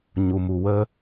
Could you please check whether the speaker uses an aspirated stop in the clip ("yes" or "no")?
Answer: no